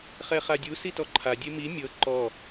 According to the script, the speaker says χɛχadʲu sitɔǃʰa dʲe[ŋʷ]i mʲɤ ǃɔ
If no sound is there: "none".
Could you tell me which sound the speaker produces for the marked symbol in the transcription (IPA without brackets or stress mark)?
m